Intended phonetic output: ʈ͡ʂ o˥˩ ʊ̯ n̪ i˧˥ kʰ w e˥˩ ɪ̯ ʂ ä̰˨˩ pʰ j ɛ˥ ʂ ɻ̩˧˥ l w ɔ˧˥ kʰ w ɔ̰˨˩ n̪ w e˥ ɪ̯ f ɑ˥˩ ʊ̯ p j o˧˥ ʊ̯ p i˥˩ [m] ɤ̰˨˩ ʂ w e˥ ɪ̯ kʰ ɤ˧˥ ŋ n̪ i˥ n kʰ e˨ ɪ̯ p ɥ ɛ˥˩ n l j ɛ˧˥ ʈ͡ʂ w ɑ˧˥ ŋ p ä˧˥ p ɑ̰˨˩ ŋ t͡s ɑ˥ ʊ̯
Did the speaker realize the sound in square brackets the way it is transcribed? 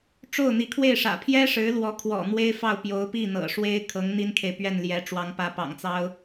no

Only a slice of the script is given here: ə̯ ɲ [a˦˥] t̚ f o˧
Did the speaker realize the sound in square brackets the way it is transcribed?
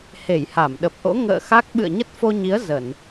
no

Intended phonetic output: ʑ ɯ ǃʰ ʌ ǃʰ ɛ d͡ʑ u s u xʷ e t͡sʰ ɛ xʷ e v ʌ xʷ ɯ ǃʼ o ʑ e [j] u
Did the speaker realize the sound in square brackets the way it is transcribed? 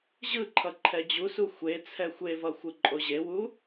no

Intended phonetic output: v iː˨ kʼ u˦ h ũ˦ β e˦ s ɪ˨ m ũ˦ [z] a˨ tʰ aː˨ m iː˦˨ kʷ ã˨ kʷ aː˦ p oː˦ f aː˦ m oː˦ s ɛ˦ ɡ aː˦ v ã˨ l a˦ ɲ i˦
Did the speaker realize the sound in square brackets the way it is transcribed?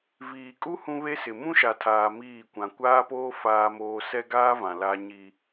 no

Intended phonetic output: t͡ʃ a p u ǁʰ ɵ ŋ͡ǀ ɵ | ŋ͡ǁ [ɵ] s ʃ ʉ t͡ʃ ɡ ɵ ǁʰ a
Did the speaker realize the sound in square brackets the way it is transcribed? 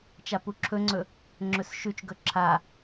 yes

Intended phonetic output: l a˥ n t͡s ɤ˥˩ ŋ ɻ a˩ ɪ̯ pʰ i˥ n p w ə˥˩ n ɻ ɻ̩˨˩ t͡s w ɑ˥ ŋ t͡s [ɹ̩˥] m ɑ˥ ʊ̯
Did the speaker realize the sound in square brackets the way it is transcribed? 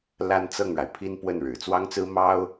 yes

